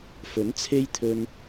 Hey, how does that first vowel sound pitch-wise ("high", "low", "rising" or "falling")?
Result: rising